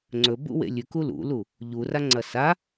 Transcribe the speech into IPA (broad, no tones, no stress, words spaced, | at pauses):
ŋ͡ǀɵbṵwḛ lʲʉku lṵlu | ʎuraŋ͡ǀɐ sa